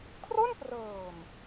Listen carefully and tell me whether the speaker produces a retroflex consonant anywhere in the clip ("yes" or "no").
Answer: no